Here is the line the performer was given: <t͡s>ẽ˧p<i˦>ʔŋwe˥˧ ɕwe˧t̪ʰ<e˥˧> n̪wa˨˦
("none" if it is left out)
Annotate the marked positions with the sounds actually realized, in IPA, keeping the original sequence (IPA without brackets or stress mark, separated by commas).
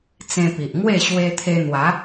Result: t͡s, i˨, e˧